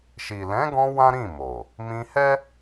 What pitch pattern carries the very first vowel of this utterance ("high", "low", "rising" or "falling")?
low